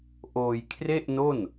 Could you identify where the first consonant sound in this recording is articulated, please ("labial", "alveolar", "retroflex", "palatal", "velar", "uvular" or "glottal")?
glottal